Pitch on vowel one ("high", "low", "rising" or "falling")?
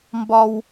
low